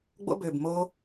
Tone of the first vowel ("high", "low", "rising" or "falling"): high